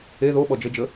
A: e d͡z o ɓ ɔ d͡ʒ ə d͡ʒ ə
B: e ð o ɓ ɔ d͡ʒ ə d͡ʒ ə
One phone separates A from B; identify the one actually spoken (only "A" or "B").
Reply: B